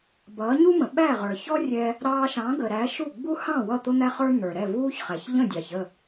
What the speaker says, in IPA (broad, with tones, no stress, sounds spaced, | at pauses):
b ʌː˩˥ ɲ u˥ m ə̃˩ ɓ æ˥˩ ʁ ə˞˩ ç ɔ˥ rʲ ɛ˧ | ɾ ɑː˧ ʃ ɑ̃˩˥ ɡ əː˩ ɾ æ˩˥ ʃ u˥˩ ɡ͡b u˥ h ɑ̃˥˩ w ʌ˥˩ t̪ ʊ˥ n̪ æ˥ χ ə˞˥ n̪ ə˞˩ ɾ ɛ˥˩ v uː˥ ç χ æ˩ ç ʎ ə̃˥˩ dʲ ɑ˩ ç ə˥˩